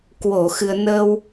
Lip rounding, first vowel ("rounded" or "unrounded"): rounded